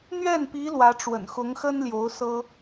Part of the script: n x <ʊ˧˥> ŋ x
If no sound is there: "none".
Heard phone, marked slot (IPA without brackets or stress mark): ʊ˧˥